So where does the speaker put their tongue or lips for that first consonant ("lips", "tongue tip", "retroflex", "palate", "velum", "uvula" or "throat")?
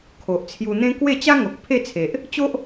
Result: velum